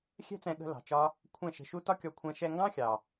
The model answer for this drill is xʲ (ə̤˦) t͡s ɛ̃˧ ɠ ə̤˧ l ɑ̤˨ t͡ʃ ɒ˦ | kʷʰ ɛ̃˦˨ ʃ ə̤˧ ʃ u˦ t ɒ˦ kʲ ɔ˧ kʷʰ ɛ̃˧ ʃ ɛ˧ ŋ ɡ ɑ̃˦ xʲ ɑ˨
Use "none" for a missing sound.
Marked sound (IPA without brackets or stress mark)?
ɛ̤˦